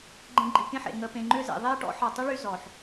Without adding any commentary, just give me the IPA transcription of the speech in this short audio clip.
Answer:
ɡ͡ǃ ẽ˧ ɡ͡ǃ i˨ k ẽ˦ ħ ḛ˨ ŋ ə˨ p ẽ˨ ŋ͡ǃ ʏ˧ z ḛ˨ ðˤ e˦ ʈ ɔ̰˦ ħ ɒ˨ tˤ ʏ˦ ɭ y˧ z ɔ˨ ħ

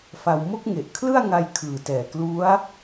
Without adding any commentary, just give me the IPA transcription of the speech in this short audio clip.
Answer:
f a˧ w m o˦˥ k̚ ŋ e˨˩ ʔ kʰ l ɯ˥˩ a̯ ŋ a˧ j kʰ ɯː˨˩ t ɛː˨˩ k l u˦˥ a̯

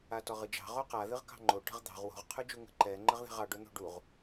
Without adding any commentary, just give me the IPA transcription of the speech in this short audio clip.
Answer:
a t ɔ ʁ ɨ d͡ʒ ɑ̤ ʁ o q a ð ɨ ʁ k ɑ̤ ŋ͡ǃ o ʈ ə̤ ʁ d̪ ɑ̤ ʁ w o̤ ʁ qʰ ʉ d͡ʒ u ŋ ə̤ ǃ ɛ ŋ͡ǃ ə ʁ ð ɛ̤ ʁ ɑ ɖ o n̪ o̤ ɖ u ʁ

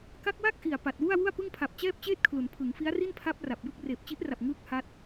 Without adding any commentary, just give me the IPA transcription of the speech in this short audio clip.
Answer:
k a˦˥ k̚ w a˥˩ k̚ ʔ i˨˩ a̯ p a˨˩ t̚ w u˥˩ a̯ w u˥˩ a̯ p ɯ˥˩ ŋ pʰ a˨˩ p̚ t͡ɕ ɛː˥˩ p̚ t͡ɕ eː˥˩ t̚ kʰ l u˩˦ n pʰ ɯ˩˦ ŋ f i˦˥ a̯ r i˥˩ n pʰ a˦˥ p̚ r a˨˩ p̚ j ɯ˥˩ k̚ r eː˨˩ p̚ t͡ɕ i˦˥ ʔ r a˨˩ p̚ ŋ ɯː˥˩ k̚ h a˦˥ t̚

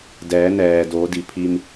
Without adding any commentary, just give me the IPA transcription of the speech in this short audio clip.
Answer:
d ɛː˩˧ n ɛː˩ d oː˩˧ d i˩ pʰ i˧ m

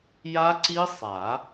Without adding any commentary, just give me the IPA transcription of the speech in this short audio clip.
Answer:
j a˦˥ ǀ i˦˥ sˤ a˨˩˦

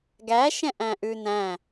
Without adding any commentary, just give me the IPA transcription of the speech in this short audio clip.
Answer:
ɡ æ ʃ ɛ̃ ʔ æ̃ ʔ ʉ n æ̃

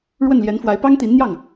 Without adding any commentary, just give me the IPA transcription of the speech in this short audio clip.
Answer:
ɻ w ə˥˩ n l j ɛ˧˥ n f w a˧˥ ɪ̯ p ɑ˥ ŋ t̪ i˧˥ n n̪ j ɑ˥˩ ŋ

